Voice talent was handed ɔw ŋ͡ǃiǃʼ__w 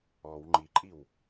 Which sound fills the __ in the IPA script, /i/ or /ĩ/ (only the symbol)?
i